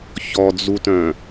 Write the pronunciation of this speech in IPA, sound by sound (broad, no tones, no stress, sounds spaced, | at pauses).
ç ɔ d͡z u t œ̃